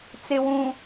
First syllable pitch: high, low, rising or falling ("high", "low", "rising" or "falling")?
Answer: low